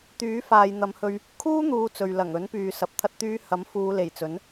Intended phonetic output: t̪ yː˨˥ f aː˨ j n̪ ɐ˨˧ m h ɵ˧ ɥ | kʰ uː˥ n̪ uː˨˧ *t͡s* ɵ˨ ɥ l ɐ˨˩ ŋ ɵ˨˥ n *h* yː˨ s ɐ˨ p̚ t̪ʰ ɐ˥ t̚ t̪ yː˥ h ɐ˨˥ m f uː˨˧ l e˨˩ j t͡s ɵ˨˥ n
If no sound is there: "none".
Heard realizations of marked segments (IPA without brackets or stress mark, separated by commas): t͡s, p